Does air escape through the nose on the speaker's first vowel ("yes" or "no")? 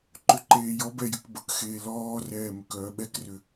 no